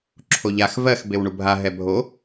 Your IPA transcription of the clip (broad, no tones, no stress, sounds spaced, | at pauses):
ǁʰ o ʎ a x v ɜ x b e w ɳ u bʱ a ɦ ɛ bʱ o